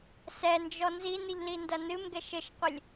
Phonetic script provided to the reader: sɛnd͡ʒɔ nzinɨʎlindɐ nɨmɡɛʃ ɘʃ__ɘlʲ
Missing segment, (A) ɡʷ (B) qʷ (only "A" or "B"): B